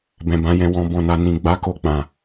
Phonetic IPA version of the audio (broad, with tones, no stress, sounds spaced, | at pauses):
b ɛ̃˨ b ã˨˦ j ɛ̃˧ w ɔ̃˨ b ɔ̃˨ n a˨ n ĩ˨ ɡ͡b a˨˦ k o˧ k͡p ã˨